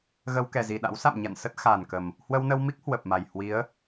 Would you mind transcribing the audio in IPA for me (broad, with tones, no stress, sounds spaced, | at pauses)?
ɣ ə˧ w k ɛ˨˩ z i˨˩ ɗ a̰˧˥ w s a̰˧˨ m ɲ a̰˧˨ n s ə˦˥ t̚ x a˨˩ n k ə˨˩ m | h w ə˧ w n ə˧ w m i˦˥ k̚ h w ə˨˩ p̚ m a˨˩ j h w i˨˦ ə̯